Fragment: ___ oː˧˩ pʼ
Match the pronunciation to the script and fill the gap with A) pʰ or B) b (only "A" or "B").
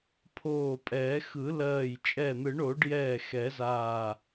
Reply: A